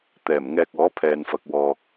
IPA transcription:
t̪ɛː˨˩mŋɛː˨k̚ ɔː˨˥pʰɛː˨nfɐ˨k̚ wɔː˨k̚

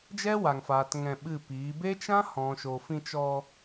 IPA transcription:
d͡ʒɛ˦wa˨ŋfaː˨t ŋɛ̃˧ɓɨ˦˨piː˨˦ be˦t͡ʃã˦hɔ̃˨ ʃo˨fĩ˧t͡ʃɔ˧

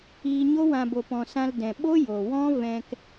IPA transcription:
iː˧ɲo˦wã˧ bo˨pɔ̃˨ sã˧ldɛ̃˨ ɓo˦ jo˨wɔ̃˦ vɛ̃˧k

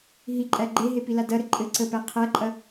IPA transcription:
ɦiǃʼæ ɡ͡ǃeɦepila dɐɾɘ ǃʼɘ ǀəpæ qʰæǃʼɐ

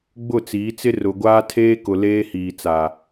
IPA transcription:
ɡ͡bʊ˦˨t͡siː˨˦t͡sɪ˦ rʊ˨ ɡʷaː˦tʰeː˦kʊ˨ leː˦hiː˨t͡sa˨

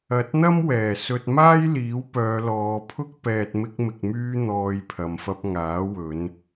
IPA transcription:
ɐ˨˥t̚n̪ɐ˥mwɛː˨˩ sɵ˨t̚maː˥jliː˨˥wpœː˨˧ lɔː˨˧pʰʊ˥k̚ pɛː˨t̚mɪ˧k̚mɪ˨k̚myː˧ n̪ɔː˨j pʰɐ˨mfɐ˧p̚ŋaː˨˥ wɵ˨˧n

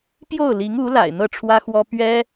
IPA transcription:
pjo˥˩ʊ̯li˧˥ŋu˧˥la̰˨˩ɪ̯ n̪ɤ˥˩ʈ͡ʂʰwä˥xwɔ˥ pɥɛ˥

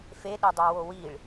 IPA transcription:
feɗedˤæwo wiɭ

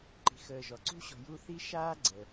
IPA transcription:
ǃi̤˨xəː˨ʒɔ˩ ǀṳ˦ɕɔ̤˨ ju˦θi˥ʃaː˥ ɡ͡ǀə˩

